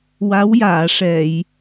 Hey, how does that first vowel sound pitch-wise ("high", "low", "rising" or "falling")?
rising